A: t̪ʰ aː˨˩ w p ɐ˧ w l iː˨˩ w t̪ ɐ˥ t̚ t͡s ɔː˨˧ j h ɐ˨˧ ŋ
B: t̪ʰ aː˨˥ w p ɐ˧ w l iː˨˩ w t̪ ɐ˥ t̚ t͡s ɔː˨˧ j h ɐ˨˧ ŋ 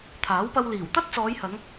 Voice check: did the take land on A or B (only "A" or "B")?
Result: B